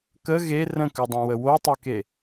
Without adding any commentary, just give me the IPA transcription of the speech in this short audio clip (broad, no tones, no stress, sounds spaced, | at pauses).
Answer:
k ə ɣ e r ə̃ k ʉ dˤ ã w ə w o tˤ ʉ k e